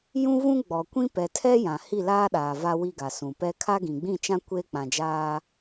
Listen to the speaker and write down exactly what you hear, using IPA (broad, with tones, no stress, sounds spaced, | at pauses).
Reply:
j ũ˦ v ũ˦ ɡ͡b ɔ˨ kʷ ĩ˦ p ɛ˨ tʰ ɛ˦ j ã˨ h i˦˨ l aː˦ ɗ aː˨ v a˦ w i˦ ɡ a˨ s ũ˨ p ɛ˦ kʰ a˦ ɡ ĩ˨ ɡ͡b ĩ˦˨ t͡ʃ ã˦ kʷ eː˦ k͡p ã˨ d͡ʒ aː˦